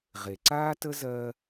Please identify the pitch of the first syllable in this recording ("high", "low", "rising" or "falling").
low